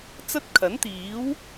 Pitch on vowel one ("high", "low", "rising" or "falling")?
high